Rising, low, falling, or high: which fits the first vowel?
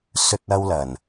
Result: high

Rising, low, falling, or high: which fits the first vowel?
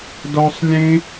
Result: high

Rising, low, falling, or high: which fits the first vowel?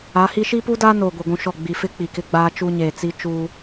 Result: rising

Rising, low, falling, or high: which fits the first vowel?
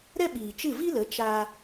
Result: high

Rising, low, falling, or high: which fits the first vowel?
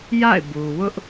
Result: falling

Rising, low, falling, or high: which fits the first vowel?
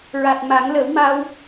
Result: low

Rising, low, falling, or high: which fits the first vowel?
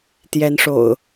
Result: rising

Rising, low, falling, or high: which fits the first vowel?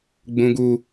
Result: high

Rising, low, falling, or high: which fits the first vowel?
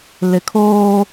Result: low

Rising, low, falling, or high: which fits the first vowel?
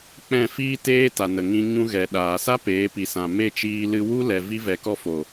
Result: falling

